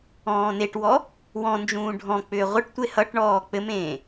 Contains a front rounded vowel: yes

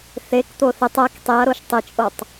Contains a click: no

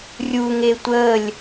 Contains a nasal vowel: no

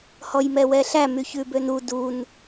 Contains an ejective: no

